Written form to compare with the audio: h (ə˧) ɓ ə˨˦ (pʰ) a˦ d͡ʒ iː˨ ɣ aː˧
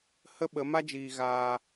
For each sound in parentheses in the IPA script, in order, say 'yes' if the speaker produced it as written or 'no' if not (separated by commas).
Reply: no, no